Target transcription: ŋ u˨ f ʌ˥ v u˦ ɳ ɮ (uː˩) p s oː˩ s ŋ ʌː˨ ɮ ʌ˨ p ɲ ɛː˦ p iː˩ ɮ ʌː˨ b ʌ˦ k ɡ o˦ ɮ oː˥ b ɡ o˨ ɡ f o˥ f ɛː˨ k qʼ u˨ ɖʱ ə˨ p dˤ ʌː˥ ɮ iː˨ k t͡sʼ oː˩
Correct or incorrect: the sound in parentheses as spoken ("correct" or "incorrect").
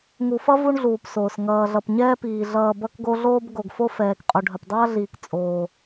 correct